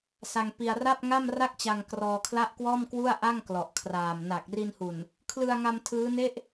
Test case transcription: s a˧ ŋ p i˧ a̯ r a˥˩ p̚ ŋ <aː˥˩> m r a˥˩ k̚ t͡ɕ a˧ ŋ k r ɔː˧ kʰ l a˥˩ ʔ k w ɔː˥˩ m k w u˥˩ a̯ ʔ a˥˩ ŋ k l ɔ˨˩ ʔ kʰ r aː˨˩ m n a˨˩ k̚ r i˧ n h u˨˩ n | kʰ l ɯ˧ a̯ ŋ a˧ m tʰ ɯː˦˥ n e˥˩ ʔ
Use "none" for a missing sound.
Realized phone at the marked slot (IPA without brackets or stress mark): a˥˩